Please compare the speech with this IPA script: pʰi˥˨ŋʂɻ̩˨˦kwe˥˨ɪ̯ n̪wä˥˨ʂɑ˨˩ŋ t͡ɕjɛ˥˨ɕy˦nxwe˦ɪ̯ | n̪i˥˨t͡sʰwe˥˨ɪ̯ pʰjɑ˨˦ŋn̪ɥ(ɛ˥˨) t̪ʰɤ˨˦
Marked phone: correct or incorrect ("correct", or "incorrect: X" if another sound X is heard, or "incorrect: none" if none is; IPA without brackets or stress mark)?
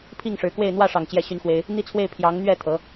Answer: correct